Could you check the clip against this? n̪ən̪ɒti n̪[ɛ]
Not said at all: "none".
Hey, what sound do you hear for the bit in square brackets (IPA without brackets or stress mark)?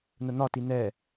ɛ